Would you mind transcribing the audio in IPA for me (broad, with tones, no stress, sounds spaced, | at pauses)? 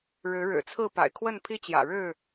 ɻ ɻ̩˨˦ ɻ ɻ̩˨˩ t͡sʰ ɹ̩˥˨ p a̰˨˩ ɪ̯ kʰ w ə˥˨ n pʰ i˦ t͡ɕ j ä̰˨˩ ɻ ɻ̩˥˨